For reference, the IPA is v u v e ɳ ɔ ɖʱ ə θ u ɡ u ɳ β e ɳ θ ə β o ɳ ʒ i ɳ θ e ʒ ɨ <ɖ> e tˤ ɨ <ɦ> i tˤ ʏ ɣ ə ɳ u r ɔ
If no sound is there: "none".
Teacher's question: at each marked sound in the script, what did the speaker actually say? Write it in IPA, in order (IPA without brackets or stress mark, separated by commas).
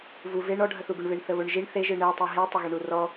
ɳ, ɦ